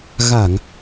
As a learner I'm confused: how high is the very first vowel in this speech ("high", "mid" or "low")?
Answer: low